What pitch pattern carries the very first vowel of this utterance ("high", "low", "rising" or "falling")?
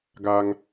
high